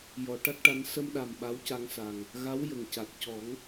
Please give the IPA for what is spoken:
j ɔ˨˩˨ ʈ a˦˥ k̚ ʈ a˧ n s ə˧ m ɗ a˨˩ m ɓ a˧˥ w c a˧ ŋ s a˨˩ ŋ | ɣ a˧˥ w j ə˨˩ ŋ c a˨˩ t̚ c ɔ˨˩˦ ŋ

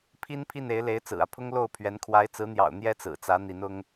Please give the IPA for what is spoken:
pʰ i˥ n pʰ i˥˩ n e˧˥ ɪ̯ l e˧˥ ɪ̯ t͡s ɹ̩˨˩ ä˦ pʰ ʊ˥ ŋ l o˥˩ ʊ̯ pʰ ɥ ɛ˧˥ n kʰ w a˧˥ ɪ̯ t͡s ɹ̩˧˥ n̪ j ɑ̰˨˩ ʊ̯ n̪ j ɛ˥ t͡s ɹ̩˨˩ t͡s ä˧˥ n̪ i˧˥ n ʊ˥ ŋ

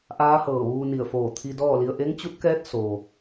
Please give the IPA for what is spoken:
ʔ aː˧˥ h ɤː˧˩ ʋ uː˧ n i˧˩ ə̯ f oː˧˩ t̪ʰ i˧ d ɔː˥˨ l i˧ ə̯ ʔ e˧˥ ŋ t͡ɕ u˧˥ t̚ k ɛː˧˥ t̚ s o˩

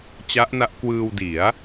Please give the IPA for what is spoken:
t͡ɕ a˦˥ ʔ n a˦˥ ʔ k w ɯː˧ w d i˩˦ a̯

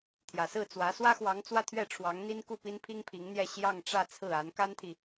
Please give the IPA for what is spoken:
t̪ʰ j ä˨˩ s ɹ̩˥˩ t͡s w ä˧˥ s w ä˥ x w ɑ˧˥ ŋ t͡s w ä˥˧ t̪ʰ ɥ ɛ˥˩ ʈ͡ʂʰ w ɑ˧˥ ŋ n̪ i˥ n k u˥˩ p i˥ n pʰ i˥ ŋ pʰ i˧˥ ŋ n̪ j ɛ˥˧ ɕ j ɑ˥˧ ŋ ʈ͡ʂ ä˥˧ t͡sʰ ɹ̩˥˩ a˧˥ n k a˥ n t̪ʰ i˨

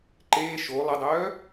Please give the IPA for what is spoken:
ǃ eː ʃ o lˠ ə dˤ œː

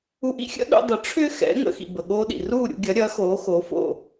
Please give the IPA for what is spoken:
u˧ ʔ ḭ˥ xʲ ə̰˥ ɗ ṵ˧ dˤ ə˩˥ ʈ͡ʂʰ ʏː˥ x ɛ̰˩˥ ŋ ə̰˩˥ x ḭ˩ b ə˩ ɠ oː˧ ɗ ḭ˩ r uː˥˩ ɾʲ ṵ˧ ɡʲ ɐ˩˥ ɾʲ ɐː˩˥ x oː˩˥ x oː˩˥ f o̰˥˩

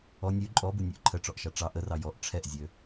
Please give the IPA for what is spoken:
ɔ nʲ ʉ ǃʼ ɔ b u nʲ ʉ ʔ ǃʰ ə ʈ͡ʂ ɔ ʔ ʃ ɑ ʈ͡ʂ ɑ ʔ ə r ɑ j ɔ ʔ ʈ͡ʂʰ ɛ ʔ zʲ ø

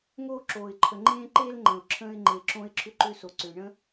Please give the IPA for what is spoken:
ŋ oː˧ ǁ oː˩ ɪ̯ ǃʰ ə˩ ŋ͡ǃ ẽː˧ ǃ e˧ l ŋ͡ǃ ə̃˩ ʊ̯ ǁʰ ə̃ː˧ ɪ̯ ŋ͡ǃ e˩ ǁ õ˧ ɪ̯ ǁʰ ʏ˧ ǃ ʏː˧ s o˩ ǀ ʏː˩ ɳ ə̃˧

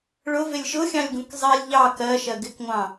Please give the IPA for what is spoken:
ɭ ʊ v ɪ lʲ ʃ ʊ xʲ ɑ̃ lʲ ɡ ũ k zˤ i lʲ ʎ ɑ k ɜ ʃ ɜ ɡ ɪ k ŋʷ ɑ̃

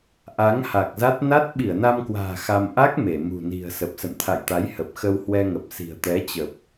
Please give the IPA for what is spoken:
ʔ a˨˦ ŋ h a˨˩ k̚ z a˦˥ t̚ n a˦˥ t̚ ɓ i˧˩ ə̯ n a˧ m k w a̤ː˨˩ x a˧ m ʔ a˦˥ k̚ m e˧˩ m ṳ˨˩ n i̤˨˩ ə̯ s ə˨˩ p̚ s ə̰˧˨ n t̪ʰ a̰˧˨ j t̪ a˨˦ j h ə˨˩ p̚ x ə˧ w h w ɛ˧ ŋ ə˨˩ p̚ s i̤˨˩ ə̯ t̪ ɛ˨˦ t͡ɕ ə˨˩ p̚

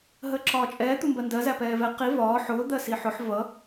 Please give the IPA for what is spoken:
ɦ əː ǁ ɒː t͡ʃʼ ɛː t̪ u m b ɜ n d ɜ z æ p ɛː v ɛ q i v ɒː ħ ʊː d̪ ɜ s i ħ ʊ ħ v ʌ

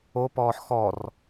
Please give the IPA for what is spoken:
o p ɔː ħ x ɔ r

